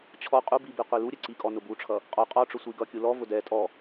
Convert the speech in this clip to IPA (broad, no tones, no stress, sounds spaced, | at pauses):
t͡ɕʰ ɔ qʼ u b i b i qʷ i l u ɾʲ ɛ ǀ i kʼ ɔ n ʊ b u ʈ͡ʂʰ ʌ | qʼ ɔ qʼ ɔ ʈ͡ʂ ʊ sʷ i ɡ ʌ kʲ u l ɔ v ʊ d ɛ tʼ ɔ